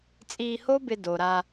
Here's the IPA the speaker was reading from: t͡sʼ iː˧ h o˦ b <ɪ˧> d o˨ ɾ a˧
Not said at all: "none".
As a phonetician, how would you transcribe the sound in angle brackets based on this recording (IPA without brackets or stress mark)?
ɪ˧